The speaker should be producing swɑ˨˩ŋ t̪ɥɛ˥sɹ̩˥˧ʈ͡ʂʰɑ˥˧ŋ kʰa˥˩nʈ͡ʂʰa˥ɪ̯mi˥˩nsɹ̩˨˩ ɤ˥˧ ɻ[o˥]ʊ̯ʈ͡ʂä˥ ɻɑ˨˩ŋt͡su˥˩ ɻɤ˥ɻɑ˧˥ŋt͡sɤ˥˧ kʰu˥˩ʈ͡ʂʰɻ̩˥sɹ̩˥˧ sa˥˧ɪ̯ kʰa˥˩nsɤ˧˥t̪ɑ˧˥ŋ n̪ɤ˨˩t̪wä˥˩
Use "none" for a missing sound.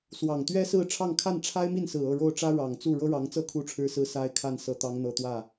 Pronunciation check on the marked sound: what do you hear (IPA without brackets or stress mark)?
o˥˩